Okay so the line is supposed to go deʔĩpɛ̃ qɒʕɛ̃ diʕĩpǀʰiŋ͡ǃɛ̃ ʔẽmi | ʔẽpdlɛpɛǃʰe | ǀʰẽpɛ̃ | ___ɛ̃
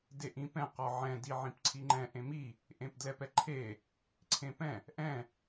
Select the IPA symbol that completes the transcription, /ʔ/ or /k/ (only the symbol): ʔ